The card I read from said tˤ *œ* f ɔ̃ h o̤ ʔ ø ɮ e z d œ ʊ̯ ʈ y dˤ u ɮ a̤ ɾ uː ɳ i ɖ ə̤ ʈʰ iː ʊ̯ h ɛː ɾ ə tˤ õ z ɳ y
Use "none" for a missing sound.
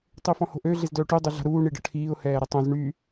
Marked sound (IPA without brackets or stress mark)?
ø